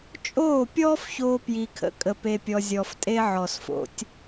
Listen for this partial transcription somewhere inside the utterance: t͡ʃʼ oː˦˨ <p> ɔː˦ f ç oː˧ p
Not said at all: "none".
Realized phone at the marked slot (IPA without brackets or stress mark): pʲ